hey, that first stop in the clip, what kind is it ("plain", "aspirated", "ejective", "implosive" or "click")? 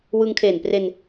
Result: aspirated